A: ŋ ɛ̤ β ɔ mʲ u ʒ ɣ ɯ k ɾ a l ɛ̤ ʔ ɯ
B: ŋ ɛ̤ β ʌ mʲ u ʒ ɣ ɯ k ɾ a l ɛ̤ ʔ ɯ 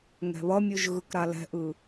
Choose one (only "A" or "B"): B